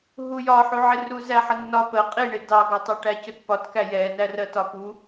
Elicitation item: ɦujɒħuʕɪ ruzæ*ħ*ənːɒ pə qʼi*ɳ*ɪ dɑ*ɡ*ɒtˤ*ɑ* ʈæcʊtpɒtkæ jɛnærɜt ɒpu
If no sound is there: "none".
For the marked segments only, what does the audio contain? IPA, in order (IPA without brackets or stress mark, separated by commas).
ħ, ɳ, ɡ, ʌ